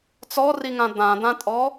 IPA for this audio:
t͡s ɔ r i ŋ ã d̪ ã d̪ ã tʼ ɔ

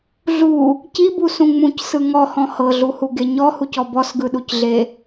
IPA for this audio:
ɮ u | c i b u s ũ ŋ͡m ũ c s ɯ ŋ ɔ h ɔ̃ h ɤ ɮ u h u ɡ e ɲ ɔ h u c ɔ b ɔ s ɡ ɯ ɗ u c ɮ e

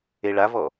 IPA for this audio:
e ɭ a v ɔ

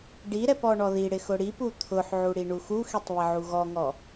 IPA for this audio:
ɖ i ɾ ɛ p ɔ ɳ ɔ ð i ɽ ɪ x ʊ ɽ i p u t̪ʰ ʊ ħ ʕ u ɽ i ɳ u x u x i tˤ β ɪ ʕ u ɣ ɔ ŋ ɔ

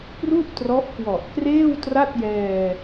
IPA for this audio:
p r u˥˩ ʔ t r ɔ˦˥ ʔ k w ɔ˨˩ ʔ k r eː˥˩ w t r a˥˩ t̚ j ɛː˧

